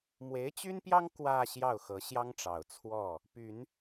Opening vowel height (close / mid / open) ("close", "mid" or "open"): mid